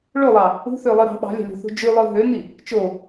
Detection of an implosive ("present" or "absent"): present